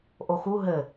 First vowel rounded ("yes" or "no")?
yes